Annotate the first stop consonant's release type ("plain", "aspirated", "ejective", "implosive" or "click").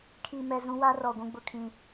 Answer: aspirated